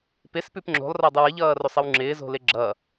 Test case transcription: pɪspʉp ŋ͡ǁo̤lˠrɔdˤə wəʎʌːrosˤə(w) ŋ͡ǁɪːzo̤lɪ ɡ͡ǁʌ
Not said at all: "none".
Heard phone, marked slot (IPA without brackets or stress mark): w